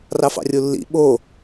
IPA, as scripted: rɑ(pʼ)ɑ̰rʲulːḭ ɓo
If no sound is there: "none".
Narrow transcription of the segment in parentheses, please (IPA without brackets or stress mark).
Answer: f